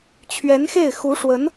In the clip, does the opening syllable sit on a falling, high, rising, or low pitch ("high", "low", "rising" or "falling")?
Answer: rising